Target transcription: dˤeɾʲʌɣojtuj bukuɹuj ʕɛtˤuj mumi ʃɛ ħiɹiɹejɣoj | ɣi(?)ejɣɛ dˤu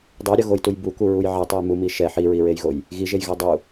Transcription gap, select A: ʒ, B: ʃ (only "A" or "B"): A